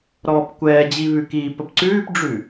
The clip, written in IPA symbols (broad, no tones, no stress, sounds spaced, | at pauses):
ɾ ɔː p kʷ ɛː d͡ʑ i β ʉ k iː p ə p ǀ ʉː p ɖ͡ʐ ʉ